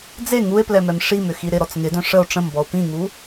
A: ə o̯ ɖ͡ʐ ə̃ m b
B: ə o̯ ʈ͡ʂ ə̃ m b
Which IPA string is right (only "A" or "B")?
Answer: B